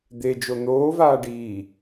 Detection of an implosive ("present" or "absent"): absent